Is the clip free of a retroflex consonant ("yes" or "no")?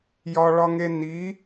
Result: no